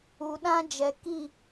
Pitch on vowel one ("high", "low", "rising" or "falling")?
low